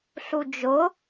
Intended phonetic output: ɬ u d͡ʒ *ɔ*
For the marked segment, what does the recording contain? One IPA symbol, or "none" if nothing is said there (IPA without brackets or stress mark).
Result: ʊ